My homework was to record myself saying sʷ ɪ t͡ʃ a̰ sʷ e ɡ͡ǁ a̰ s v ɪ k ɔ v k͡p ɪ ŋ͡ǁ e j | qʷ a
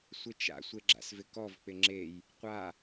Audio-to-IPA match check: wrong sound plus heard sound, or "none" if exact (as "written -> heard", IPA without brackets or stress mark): none